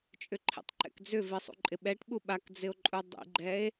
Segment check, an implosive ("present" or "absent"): present